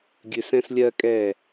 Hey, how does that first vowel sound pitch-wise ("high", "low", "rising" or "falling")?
low